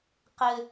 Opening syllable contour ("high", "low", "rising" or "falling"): high